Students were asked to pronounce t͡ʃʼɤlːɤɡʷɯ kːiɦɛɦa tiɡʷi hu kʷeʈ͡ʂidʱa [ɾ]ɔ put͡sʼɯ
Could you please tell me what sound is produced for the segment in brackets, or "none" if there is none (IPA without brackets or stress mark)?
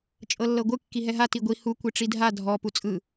dʱ